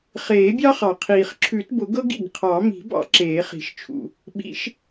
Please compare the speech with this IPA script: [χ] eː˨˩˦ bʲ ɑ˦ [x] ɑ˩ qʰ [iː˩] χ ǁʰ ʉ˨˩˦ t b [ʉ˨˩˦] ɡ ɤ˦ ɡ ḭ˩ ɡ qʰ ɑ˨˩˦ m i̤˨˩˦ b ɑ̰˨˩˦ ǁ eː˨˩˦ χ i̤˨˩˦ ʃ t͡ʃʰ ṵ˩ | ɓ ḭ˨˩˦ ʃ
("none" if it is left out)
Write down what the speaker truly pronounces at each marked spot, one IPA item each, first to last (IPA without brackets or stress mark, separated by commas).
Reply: χ, χ, iː˩, ʊ˨˩˦